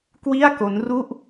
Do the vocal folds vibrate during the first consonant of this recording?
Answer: no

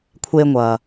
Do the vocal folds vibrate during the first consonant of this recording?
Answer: no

